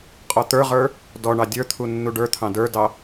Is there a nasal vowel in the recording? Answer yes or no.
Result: yes